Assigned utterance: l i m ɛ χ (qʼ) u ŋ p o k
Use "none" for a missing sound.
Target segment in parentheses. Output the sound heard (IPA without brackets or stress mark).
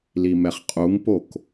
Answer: qʼ